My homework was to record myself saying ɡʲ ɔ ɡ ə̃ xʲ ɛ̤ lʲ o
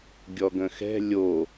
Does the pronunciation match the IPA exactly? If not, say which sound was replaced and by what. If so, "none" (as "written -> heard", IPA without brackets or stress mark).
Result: xʲ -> x